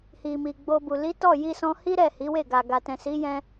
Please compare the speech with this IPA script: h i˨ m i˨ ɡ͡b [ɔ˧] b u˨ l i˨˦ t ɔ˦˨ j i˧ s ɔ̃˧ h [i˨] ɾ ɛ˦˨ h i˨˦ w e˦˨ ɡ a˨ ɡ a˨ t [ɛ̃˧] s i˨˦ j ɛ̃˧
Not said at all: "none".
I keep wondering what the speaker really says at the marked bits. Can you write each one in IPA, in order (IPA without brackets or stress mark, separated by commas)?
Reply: o˧, i˦, ɛ̃˨